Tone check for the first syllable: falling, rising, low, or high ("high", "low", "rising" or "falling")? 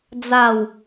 falling